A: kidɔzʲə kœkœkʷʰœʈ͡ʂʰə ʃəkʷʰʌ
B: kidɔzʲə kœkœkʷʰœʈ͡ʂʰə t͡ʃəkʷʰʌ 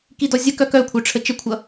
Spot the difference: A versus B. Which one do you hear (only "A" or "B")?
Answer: B